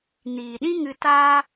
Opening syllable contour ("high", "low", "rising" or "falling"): low